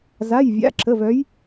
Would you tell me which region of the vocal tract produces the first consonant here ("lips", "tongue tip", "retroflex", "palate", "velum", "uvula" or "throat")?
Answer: tongue tip